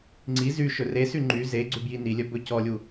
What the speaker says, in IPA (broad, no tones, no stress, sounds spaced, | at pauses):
ŋ͡ǀ i z y ʃ ɵ r e s y ŋ͡ǃ y z e ɡ͡ǀ ʉ b j i n i lʲ œ b ɵ c ɔ lʲ u